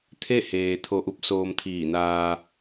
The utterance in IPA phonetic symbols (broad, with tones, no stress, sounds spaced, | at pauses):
t̪ʰ e˥˨ h eː˩ t̪ʰ o˧ ʔ u˧˥ p̚ s oː˧ m t̪ʰ iː˧˩ n aː˧